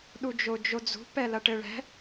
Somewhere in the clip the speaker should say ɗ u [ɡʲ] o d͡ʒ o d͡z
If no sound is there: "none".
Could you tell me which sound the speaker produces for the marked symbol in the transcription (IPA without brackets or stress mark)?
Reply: d͡ʒ